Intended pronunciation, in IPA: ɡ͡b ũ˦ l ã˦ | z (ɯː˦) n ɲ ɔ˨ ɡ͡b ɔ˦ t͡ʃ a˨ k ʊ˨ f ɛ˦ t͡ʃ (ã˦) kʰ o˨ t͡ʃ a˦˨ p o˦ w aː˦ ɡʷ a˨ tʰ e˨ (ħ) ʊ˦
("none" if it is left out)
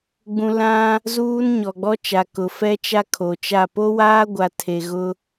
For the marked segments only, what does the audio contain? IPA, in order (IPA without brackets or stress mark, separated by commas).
uː˦, a˦, ɣ